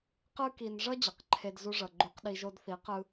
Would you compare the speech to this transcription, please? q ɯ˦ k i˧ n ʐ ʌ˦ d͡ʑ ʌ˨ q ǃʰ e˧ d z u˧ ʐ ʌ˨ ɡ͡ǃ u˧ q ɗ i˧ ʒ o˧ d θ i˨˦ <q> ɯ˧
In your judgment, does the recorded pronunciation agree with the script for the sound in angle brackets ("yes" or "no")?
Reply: yes